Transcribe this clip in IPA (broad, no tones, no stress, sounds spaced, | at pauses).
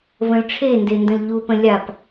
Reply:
v ə̃ l ʈ͡ʂʰ e n d e n d ə̃ l ʎ u p ə̃ lʲ a p